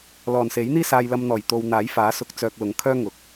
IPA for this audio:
lɔː˨˩nse˨˥jn̪iː˥saː˧j lɐ˧mn̪ɔː˨˩j t̪o˧w n̪aː˨˥jfaː˨˥sʊ˧k̚ t͡sœː˧k̚lʊ˨˥ŋkʰœː˥ ŋʊ˨k̚

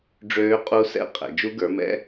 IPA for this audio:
ɖ͡ʐøː˦˥qʼu˦˥sɛ̰˦˥ qʼɛ̰˩˧d͡ʒu˦˥ɡə˞˨˥mɛ̰˦˥

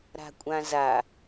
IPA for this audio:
ɾa̤kʷʼãza

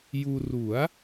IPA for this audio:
juː˧ ru˩˦a̯

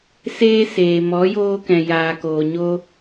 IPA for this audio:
seː˦seː˨ mɔ˨˦joː˧kɛ̃˨ jaː˨koː˨ ɲo˧

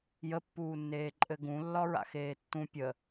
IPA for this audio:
jəpːuːnːeː ǃʼɘɡũ lːɒɹa̰xeːtːũ pʲə

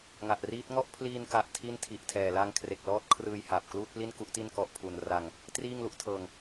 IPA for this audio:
ŋa˨˩ʔriː˦˥t̚ ŋɔ˥˩ʔpʰliː˧n ka˨˩ʔ tʰi˥˩ntʰi˨˩ʔtʰɛː˨˩ la˧ŋ kʰre˨˩k̚lɔː˦˥t̚kʰrɯː˧j ha˨˩p̚ kluː˥˩t̚pli˥˩nku˥˩ʔti˥˩n kɔ˦˥ʔpʰu˧n ra˧ŋ | triː˥˩ŋlu˦˥ʔtʰɤː˧ŋ

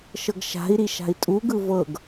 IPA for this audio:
ʃɤɡʃa̤i̯ɾi ʃa̤i̯tʼuɡɯ vɤɡ

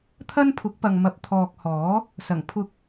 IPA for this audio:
t̪ʰɐ˥npʰʊ˨˥k̚pɐ˨ŋmɐ˨˥p̚ t̪ʰɔː˨k̚hɔː˨˥ | sɐ˨˩ŋ pʰʊ˧k̚

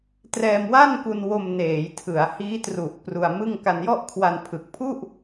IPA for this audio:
trɛː˧mwa˥˩nku˧nwo˧m neː˩˦jtʰɯ˩˦a̯ hiː˦˥tru˨˩ʔ pru˧a̯mɯ˥˩ŋ ka˧njɔ˥˩ʔkʰwa˧n pʰɯ˨˩k̚pʰu˥˩ʔ

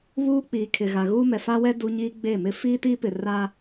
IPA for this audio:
βuː˦k͡piː˨ kʰɪ˨ɣa˨ɣuː˦ mɛ˨fa˦wɛ˦ du˦ ɲiː˦ɡ͡be˦˨mɪ˦ fiː˦tiː˦pɪ˨ ra˦

